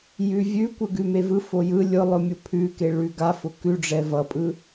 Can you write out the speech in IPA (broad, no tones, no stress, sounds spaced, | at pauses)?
j ʉ vʲ ʉ kʷ ɯ ɡ ʉ m e v ɯ f o j ɯ lʲ ʊ lˠ ʊ mʲ ʊ pʰ ʉ k e ɭ ʉ ɡ a f ʊ k ʉ ɖ͡ʐ ɛ v ʌ pʼ ɯ